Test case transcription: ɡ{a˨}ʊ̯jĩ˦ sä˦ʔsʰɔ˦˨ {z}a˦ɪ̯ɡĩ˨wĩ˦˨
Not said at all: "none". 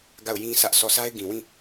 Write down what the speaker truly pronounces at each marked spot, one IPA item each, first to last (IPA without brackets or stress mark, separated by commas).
a˦˨, s